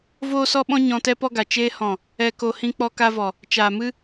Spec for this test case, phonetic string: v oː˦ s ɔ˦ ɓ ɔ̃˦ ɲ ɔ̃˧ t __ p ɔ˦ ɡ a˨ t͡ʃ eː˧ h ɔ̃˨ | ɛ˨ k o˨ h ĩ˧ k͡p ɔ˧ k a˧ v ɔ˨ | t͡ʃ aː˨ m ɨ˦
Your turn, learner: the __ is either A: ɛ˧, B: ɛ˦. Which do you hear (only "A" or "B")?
B